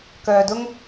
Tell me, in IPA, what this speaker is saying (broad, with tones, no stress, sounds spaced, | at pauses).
k œː˨ d ʊ˧ ŋ